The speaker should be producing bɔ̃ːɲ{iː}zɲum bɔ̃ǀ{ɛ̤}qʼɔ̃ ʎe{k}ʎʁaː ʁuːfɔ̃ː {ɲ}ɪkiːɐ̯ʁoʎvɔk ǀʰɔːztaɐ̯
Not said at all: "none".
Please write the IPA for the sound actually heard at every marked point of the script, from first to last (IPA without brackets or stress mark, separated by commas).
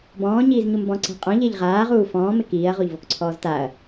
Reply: iː, ɛ̤, none, m